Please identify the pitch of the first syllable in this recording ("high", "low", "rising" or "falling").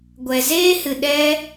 low